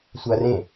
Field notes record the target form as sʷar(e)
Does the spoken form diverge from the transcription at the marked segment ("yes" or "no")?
yes